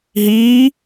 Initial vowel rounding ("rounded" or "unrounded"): unrounded